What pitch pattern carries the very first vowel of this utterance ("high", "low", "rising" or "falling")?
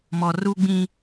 low